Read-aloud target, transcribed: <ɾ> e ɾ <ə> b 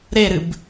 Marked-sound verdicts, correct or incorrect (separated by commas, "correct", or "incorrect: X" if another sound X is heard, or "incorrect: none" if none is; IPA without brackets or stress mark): correct, incorrect: ɨ